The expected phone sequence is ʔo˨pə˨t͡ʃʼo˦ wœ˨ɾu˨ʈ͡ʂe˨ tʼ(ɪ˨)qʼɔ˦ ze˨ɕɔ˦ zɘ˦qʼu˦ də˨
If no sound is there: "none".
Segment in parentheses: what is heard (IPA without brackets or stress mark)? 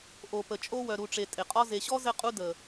ɪ˨